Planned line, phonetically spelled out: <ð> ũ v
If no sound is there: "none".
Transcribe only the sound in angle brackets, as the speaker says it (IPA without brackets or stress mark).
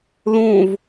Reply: ð